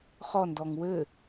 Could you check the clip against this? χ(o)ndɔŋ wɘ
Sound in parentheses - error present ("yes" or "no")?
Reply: yes